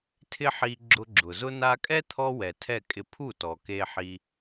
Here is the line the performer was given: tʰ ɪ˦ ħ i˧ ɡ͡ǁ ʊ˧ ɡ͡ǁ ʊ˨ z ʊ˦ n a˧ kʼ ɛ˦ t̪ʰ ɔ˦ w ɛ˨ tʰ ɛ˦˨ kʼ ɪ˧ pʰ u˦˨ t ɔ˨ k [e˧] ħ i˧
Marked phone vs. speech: correct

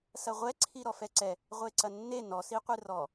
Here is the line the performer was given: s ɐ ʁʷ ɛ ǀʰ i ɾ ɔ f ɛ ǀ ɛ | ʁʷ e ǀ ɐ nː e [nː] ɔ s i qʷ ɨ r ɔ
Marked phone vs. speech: incorrect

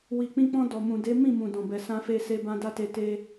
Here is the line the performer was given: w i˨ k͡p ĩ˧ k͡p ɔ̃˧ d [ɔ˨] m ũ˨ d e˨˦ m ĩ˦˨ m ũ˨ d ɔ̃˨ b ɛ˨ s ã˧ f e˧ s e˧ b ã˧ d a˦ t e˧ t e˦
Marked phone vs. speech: correct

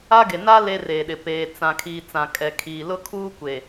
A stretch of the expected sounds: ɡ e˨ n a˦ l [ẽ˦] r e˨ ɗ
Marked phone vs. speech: incorrect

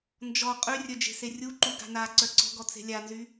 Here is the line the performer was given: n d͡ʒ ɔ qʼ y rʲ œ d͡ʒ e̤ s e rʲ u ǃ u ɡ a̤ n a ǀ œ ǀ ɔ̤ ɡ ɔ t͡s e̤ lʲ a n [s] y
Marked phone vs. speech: incorrect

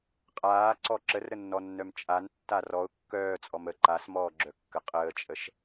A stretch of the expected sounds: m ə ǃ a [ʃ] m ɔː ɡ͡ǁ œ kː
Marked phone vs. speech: incorrect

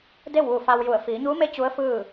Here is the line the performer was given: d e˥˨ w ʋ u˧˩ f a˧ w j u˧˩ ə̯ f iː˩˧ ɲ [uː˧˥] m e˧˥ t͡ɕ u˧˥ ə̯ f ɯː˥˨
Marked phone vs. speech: correct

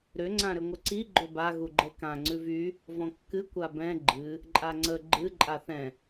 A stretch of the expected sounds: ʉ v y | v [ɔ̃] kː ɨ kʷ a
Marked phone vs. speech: correct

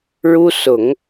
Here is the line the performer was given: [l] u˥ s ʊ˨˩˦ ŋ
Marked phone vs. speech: incorrect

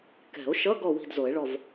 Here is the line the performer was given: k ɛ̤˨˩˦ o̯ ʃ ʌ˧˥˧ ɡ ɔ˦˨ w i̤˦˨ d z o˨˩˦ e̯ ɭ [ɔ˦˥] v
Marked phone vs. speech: incorrect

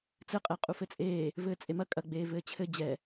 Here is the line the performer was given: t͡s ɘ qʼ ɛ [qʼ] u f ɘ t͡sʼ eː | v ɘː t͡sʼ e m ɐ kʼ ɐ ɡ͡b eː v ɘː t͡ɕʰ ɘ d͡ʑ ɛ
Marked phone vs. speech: correct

